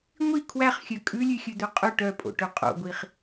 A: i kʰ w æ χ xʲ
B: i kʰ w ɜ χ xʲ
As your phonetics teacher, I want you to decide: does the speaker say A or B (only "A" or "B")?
A